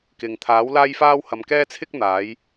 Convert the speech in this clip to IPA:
k ɪ˨ ŋ t̪ʰ aː˨˥ w l aː˥ j f aː˥ w h ɐ˨˧ m k ɛː˥ t͡sʰ ɪ˥ k̚ n̪ aː˨˥ j

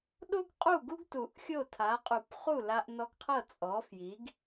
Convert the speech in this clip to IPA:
ɗ o˥ ɡ qʼ u˥˩ ɡ u˥ ɡ t u˨˩˦ ʔ xʲ o˥˩ tʰ a˩˥ qʼ u˨˩˦ p χ u˥˩ l a˧ ʔ n ɔ˧ ɡ qʰ ɤ˥˩ t͡sʼ ɔ˩˥ f j i˩˥ ɡ

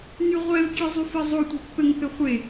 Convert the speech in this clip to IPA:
n y ʁʷ ɛ v kʲ e zˤ y f ɛ zˤ o tʷ ɛ̤ pː ɘ ŋ θ ɘ χʷ e

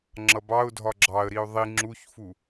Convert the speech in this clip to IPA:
ŋ͡ǁ ʌ b ɑ ʊ̯ dʱ ɒ ɡ͡ǁ ɑ ə̯ ɾ i ʊ̯ ðˤ i ŋ͡ǁ u ç f u

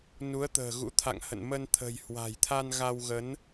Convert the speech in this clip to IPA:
n u˨˦ ə̯ t̪ ə̤ː˨˩ ɣ ṵ˧˥ t̪ʰ a̰˧˨ ŋ h ə̰˧˨ n m ə˧ n t̪ʰ ə̤˨˩ j h w a̤˨˩ j t̪ʰ a˧ n ɣ a˧ w ɣ ə˨˦ n

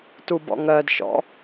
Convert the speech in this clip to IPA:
t u b ɔ̰ ŋ ɜ d ʃ ɔ̰

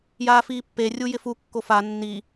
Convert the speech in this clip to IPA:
j aː f iː pː e rʲ u j ɪ f u kː o f a nː i

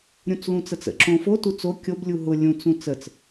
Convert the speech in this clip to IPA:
ɾʲ ũ t͡s l ũ t͡s ə t͡s ə̰ ǁ õ f o t u t͡s o kʲ o b lʲ u ɦ ʊ lʲ ũ t͡s ũ t͡s ə t͡s

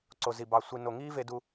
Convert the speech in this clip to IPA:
ǀ o˨ z i˨ b ɑ˨ sʷ i˨ n o˨ ŋ i˦ v e˦ d u˦

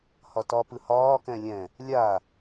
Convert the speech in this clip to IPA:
h ɒ t ɒ p ɯ h ɒː k ɛ̃ lʲ ɛ̃ | lʲ a

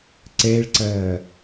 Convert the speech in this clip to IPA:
ǀ ɛ ɭ ǀ ɐː

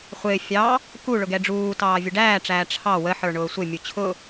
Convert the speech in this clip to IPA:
χʷ ɪː fʲ ɑ | k u ɭ ʊ ɡ ɛ ɖ͡ʐ uː t ɑː vʲ ʊ ɖ æː ʈ͡ʂ æː ʈ͡ʂʰ ɑ w ə ħ ə˞ ɳ ʊː sʷ ɪ mʲ u t͡ɕʰ ʊ

